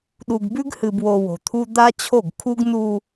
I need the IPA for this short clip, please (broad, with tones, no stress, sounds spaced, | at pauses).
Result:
ɗ u˨ ɡ b ʉ˦ ɡ h ɨ˨ b w o˨ w o̤˨ t̪ʰ u˦ d̪ a˦ t͡ɕʰ o˦˨ ɡ kʰ u˦ ɡ n u˦